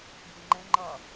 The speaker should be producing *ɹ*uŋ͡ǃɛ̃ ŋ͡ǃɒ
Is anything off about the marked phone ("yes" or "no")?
yes